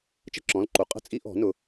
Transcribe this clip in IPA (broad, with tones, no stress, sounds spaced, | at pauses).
t͡ʃ ə̤˥˨ ǁ ɔ̃˩˧˩ l ǃ u˩˧˩ qʼ ə̤˥˨ t͡sʼ i˦ ʔ ɔ̤˨˩˦ n ʊ˩˧˩